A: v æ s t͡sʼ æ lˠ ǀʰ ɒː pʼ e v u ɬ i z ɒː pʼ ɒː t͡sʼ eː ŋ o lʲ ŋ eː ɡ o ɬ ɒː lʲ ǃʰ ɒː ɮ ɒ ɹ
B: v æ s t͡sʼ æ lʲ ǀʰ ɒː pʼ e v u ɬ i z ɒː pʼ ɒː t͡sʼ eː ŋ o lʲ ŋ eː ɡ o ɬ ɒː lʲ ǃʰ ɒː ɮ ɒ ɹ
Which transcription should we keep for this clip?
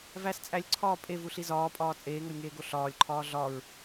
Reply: B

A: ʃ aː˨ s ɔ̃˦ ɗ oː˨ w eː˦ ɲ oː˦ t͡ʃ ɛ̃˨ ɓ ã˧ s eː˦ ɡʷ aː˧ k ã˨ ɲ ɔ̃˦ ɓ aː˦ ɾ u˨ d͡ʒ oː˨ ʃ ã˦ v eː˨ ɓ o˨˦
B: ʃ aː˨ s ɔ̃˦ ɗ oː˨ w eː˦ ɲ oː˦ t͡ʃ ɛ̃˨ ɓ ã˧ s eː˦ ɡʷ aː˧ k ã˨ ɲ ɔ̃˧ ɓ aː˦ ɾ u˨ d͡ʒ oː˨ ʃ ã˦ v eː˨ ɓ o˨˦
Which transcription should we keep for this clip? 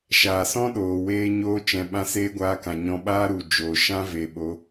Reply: B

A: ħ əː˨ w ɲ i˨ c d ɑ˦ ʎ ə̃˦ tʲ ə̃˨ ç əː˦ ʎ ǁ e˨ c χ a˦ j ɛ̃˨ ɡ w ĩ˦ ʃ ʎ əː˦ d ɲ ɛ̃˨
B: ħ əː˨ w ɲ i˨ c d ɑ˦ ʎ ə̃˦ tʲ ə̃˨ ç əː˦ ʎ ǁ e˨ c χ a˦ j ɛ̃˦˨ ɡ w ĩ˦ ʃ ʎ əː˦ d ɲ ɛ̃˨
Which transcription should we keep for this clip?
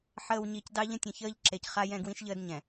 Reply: B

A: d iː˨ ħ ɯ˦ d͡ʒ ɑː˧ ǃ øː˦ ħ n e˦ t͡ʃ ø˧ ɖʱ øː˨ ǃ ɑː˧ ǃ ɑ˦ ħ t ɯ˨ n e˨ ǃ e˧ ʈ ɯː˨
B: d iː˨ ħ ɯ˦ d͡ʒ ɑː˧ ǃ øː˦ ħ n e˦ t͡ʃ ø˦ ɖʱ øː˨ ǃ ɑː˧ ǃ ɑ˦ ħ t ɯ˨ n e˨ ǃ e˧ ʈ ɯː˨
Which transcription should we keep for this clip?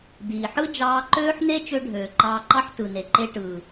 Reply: A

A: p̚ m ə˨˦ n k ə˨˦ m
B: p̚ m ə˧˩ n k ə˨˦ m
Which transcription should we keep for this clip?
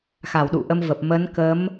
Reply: A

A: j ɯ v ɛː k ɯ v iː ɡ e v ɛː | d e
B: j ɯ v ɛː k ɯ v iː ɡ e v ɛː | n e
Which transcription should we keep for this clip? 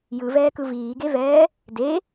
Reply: A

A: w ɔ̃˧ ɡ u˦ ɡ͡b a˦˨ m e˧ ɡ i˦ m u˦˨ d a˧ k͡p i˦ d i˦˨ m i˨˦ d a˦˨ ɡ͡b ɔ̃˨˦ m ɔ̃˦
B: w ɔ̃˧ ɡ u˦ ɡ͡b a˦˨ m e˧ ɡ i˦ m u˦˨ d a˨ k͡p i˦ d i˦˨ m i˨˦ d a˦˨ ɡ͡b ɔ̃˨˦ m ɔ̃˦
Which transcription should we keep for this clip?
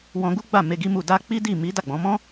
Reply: A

